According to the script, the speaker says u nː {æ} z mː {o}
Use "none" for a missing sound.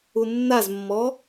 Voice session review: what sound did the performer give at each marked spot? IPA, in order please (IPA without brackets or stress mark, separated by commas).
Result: a, ɔ